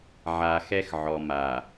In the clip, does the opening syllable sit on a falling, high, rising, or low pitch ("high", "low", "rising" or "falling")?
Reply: low